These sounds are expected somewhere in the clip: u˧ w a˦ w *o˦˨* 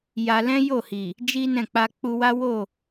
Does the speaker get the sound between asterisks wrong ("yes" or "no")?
no